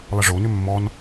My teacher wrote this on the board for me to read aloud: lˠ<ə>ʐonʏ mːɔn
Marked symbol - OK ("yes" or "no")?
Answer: yes